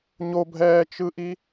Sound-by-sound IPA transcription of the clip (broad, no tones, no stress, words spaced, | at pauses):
ɲobʱɛːt͡ʃɯʔi